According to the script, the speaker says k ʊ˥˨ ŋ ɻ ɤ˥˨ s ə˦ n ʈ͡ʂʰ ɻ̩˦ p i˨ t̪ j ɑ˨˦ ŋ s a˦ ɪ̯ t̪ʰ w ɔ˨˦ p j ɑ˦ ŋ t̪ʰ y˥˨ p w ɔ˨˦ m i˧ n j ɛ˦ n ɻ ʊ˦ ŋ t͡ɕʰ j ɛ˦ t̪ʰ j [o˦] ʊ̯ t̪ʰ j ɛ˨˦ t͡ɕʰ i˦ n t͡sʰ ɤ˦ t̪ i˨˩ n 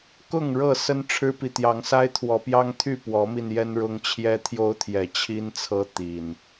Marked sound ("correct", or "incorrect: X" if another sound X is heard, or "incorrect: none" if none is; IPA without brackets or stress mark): correct